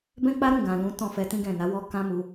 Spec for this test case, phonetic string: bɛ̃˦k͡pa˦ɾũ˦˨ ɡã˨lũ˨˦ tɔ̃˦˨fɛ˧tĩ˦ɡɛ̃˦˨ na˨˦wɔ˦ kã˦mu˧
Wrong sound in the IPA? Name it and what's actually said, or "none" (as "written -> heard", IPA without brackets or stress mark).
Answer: none